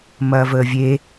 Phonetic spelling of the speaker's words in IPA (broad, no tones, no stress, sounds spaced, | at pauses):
m ɐː v əː vʲ e